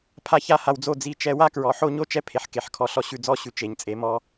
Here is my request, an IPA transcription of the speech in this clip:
pʰa˦ça˦ha˧wd͡zo˦˨ d͡zi˦˨t͡ʃɛ˦ wa˦kɹɔ˨ ħo˦ɲo˦t͡ʃɛ˦pʰe˨ħ ke˨ħkʰɔ˨˦ ɬɔ˧ɕʉ˨ d͡zɔ˧ɕʉ˨ t͡ʃe˨ɲt͡sʼe˨˦ mɔ˧

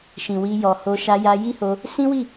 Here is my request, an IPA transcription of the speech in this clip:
ʃĩ˨wi˧jɔ˨ho˧ ʃa˧ja˧ji˦ho˧ | sĩ˦wi˦˨

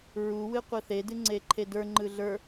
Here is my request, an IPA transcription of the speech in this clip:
ɹuwɨ qʷɯθedɨ ŋ͡ǀeǃʰedə˞ŋ͡ǃɯ ɮə˞

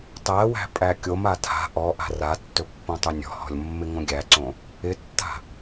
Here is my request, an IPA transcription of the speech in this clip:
tˤæwæ̤ pʼækʲom atʰa̤ ʔɔʔa̤ ratːɵpːõtˤɵ nʲɔ̤hɔ̤lʲmːɪ ŋõɡʲæǀõ | ɪtːa̤

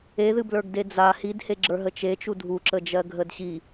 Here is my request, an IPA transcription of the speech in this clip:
eðɨblə˞ɡde d͡za hidheɡ͡ǁə˞ ɦət͡ʃet͡ʃu dʱuǁəd͡ʒɜ ɡʱədɕi

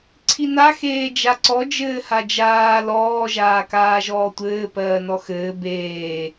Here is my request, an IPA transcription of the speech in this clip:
ǀʰina xeːd͡ʒaǀɔ d͡ʒɘːhad͡ʒaː lɔː ʒaːkaːʒɔːtʷɘː pɜːnɔxɘː beː

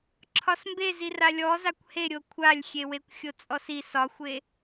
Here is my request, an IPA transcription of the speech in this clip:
ǁʰɒsmbezir alʲɔ zakʷhe ɾʲokʷʰalʲxʲewekʷ xʲot͡sʼɔsi sɒxʷe

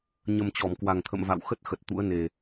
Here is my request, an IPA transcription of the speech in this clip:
ɲə˨˩m t͡ɕɔ˧˩mkwa˨˩ŋt̪ʰə̰˧˨m va̰˧˨wxə˦˥t̚ xə˨˩t̚t̪ṵ˧˥ə̯ne˨˩

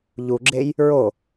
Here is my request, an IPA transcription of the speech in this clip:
ʎuɡ͡ǁej | ɹo

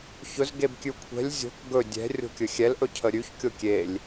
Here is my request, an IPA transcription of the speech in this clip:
çɵzɡeb kʲʉkʷʰɛ̤lʲ zʲo̤k ɡɵ dʲɛ̤ rʲo̤kʲɵxʲɛlʔɵ cʰəɾʲʉçkʲo kʲelʲ

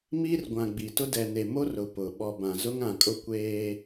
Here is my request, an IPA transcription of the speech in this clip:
miː˦rɡʷã˨ɡ͡bi˨ tʊ˦ dɛ˨ne˨mo˦ rʊ˨ pʊ˨ ɓɔ˨bã˨ zʊ˦ŋã˨kʼʊ˦ kʷeː˦

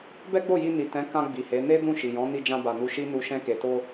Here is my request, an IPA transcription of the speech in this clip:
bɛ˦ɡ͡bo˦˨ji˧ ni˨tɛ̃˨˦ kã˧ ɡ͡bi˨he˨˦ ne˦ dũ˦˨ʃi˨jɔ̃˨˦ ni˧d͡ʒã˧ba˨ nu˧ʃi˦nu˧ ʃɛ̃˧ke˨to˧

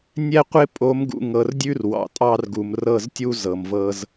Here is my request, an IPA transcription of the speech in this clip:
nʲɛ˦qʷɪ˦ pʼo˨˦mɡṵ˨ŋɤ˨rdʲʉ˦r wɑ̰˨tʼɑ˦rɡu˨m rɤ˦˨ztʲu˦ zɤ˨mvɤ˦z

